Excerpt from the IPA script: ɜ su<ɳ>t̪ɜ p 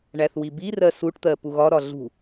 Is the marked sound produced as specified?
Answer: no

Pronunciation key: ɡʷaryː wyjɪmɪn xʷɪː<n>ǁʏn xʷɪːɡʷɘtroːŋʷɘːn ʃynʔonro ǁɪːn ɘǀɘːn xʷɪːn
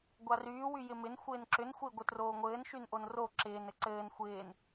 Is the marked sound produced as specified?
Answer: yes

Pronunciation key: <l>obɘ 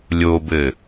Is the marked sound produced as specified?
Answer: no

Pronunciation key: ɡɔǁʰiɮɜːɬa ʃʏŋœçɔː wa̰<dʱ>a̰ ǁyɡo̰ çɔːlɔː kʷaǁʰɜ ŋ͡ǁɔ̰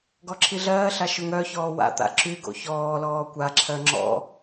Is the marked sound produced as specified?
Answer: no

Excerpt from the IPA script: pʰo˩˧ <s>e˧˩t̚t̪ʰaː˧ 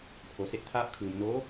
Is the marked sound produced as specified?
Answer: yes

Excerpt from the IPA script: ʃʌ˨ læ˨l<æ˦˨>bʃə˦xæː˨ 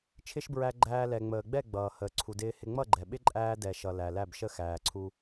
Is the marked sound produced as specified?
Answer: yes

